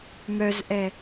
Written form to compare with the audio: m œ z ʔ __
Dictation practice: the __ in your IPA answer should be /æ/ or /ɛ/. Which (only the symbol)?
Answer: ɛ